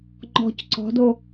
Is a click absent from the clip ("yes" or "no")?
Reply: no